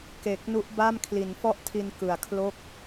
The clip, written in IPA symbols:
k e˨˩ k̚ n u˦˥ ʔ b a˥˩ m kʰ l i˩˦ n f ɔ˥˩ ʔ tʰ i˧ n k ɯ˨˩ a̯ kʰ l o˥˩ k̚

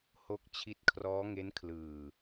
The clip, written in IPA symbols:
h o˦˥ k̚ t͡ɕʰ i˦˥ t̚ kʰ r ɔː˦˥ ŋ e˦˥ n kʰ l ɯː˨˩

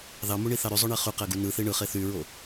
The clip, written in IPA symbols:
ð ɑ m u ɳ i θ ɑ ɾ y zˤ o ɳ e χ y q æ ɡ u n ɯ θ i ɳ ɯ χ e θ y ɹ o

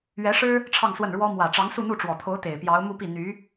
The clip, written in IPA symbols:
ɥ ɛ˧˥ ʂ ɻ̩˥ | ʈ͡ʂʰ ɑ˥˧ ŋ s w ə˥˩ n ɻ w ɔ˥ m w ä˨˩ ʈ͡ʂ ɑ˧˥ ŋ s u˥˧ n̪ u˥˩ ʈ͡ʂ w ɔ˨˩ t̪ʰ o˧˥ ʊ̯ t̪ e˨˩ ɪ̯ p j ɑ˧˥ ʊ̯ m u˥˧ p i˥˩ n̪ y˧˥

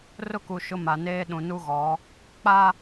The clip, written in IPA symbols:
r ʊ˦ k u˨ ʃ ʊ˦ m a˨ n eː˦ ɗ ũ˨ n u˦ ɣ ɔ˨˦ | k͡p a˦

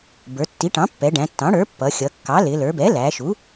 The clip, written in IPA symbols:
b ə˞˩˧ tː i˩˥ ʈ ɑ̃˩˥ pː ɛ˩˧ ɖ æ̃˩˧ tː ɑ̃˩˥ ɽ ə˞˩˥ pː ʌ˩˧ xʲ ʌ˩˧ kː ɑ˩˥ l ɪ˩˧ l ə˞˩˧ b ɛ˩˥ l æ˩˧ ʃ u˩˥

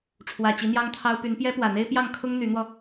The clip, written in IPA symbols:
ʈ͡ʂʰ w ä˨˩ t͡ɕ i˧˥ n̪ j ɑ˥ ŋ t̪ʰ ɑ˥ ʊ̯ p y˧˥ n p j ɛ˥ p w ä˨˩ n̪ e˥ ɪ̯ p j ɑ˥˩ ŋ kʰ ʊ˥ ŋ n̪ y˧˥ n̪ w ɔ˧

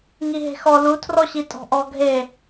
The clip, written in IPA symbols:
ŋ i ɦ e̤ x ɔ l u tʰ r ɔ ɕ i tʼ ɔ̤ ʔ ɔ ɡʱ e

